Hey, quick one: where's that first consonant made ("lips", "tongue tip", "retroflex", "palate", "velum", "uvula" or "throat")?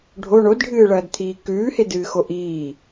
retroflex